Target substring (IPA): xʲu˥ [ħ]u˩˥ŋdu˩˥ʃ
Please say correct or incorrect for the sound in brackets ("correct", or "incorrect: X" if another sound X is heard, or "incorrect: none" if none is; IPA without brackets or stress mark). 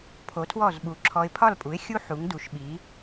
correct